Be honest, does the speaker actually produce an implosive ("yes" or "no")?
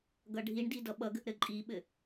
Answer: yes